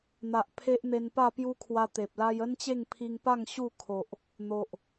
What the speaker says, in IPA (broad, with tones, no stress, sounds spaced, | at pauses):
n̪ a˨ ʔ pʰ e˦ ʔ n̪ e˧ n p a˥˧ p j u˦ kʰ w a˧ t̪ e˨ p̚ l a˦ j ə˦ n t͡ɕ e˥˧ ŋ pʰ i˧ ŋ p a˥˧ ŋ ɕ u˥˧ kʰ o˨ ʔ | n̪ o˨ ʔ